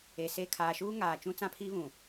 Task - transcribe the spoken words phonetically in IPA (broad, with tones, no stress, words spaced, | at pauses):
e˨se˦˨ kʰaː˨ʃuː˦ ŋaː˨t͡ʃũ˦t͡sã˦pʰiː˦ βũ˨